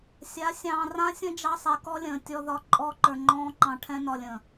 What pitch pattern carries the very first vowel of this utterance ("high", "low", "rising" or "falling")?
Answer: rising